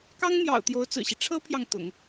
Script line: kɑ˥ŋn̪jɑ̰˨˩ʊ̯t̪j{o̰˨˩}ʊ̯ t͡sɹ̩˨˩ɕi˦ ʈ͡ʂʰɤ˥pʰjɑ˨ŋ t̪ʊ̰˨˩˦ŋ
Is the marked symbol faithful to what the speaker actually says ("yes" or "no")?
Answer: no